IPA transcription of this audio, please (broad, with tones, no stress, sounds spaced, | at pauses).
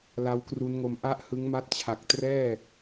l a˦˥ w k r u˦˥ n ŋ o˧ m ʔ a˥˩ ʔ h ɯ˦˥ ŋ m a˥˩ t̚ t͡ɕʰ a˨˩ k̚ t r ɛː˥˩